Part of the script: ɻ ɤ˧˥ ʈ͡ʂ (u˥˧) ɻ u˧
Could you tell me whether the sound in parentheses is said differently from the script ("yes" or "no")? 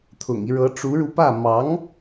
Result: yes